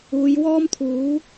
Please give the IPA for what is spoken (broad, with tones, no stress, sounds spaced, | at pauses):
uː˨˧ j w ɔː˥ m t̪ʰ uː˨˥